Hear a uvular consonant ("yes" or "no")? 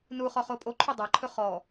yes